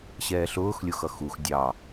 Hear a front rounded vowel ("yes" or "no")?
no